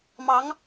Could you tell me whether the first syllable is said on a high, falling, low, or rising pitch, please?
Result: rising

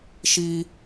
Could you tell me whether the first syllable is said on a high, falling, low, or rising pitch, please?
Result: high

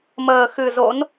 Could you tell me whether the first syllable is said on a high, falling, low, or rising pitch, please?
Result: low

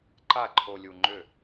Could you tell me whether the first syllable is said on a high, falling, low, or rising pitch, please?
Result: falling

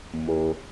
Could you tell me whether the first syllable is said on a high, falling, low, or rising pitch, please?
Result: low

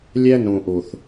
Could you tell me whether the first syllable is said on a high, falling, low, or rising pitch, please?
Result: high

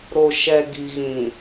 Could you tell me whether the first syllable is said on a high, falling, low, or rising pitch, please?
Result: low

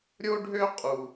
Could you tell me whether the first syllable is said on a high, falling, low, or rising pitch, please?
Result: high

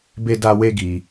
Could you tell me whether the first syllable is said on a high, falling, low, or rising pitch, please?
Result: high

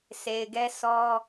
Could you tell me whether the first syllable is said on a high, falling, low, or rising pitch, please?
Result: low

